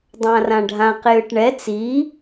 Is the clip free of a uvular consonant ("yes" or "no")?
no